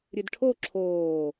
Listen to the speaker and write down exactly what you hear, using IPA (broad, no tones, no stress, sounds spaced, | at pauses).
ɾʲ ɨ d ʈʰ o ǁʰ oː